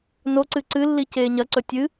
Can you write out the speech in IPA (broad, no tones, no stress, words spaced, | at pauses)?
noǀɨ ǀɨlːi ceːɲɐǀɵ tʲɨ